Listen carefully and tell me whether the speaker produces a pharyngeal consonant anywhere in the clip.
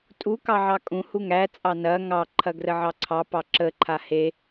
yes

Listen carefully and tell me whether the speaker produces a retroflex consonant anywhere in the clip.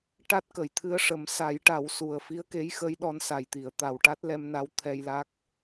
yes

